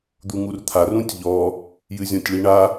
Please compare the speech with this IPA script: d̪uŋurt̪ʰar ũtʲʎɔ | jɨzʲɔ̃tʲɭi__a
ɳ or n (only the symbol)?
ɳ